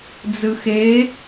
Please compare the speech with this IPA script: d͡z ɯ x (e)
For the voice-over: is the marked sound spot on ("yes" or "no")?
yes